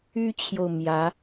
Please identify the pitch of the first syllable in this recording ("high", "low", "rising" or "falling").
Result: high